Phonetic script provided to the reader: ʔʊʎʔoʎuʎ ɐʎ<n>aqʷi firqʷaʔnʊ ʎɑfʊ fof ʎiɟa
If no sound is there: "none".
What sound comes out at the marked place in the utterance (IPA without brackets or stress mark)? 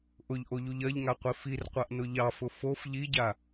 ŋ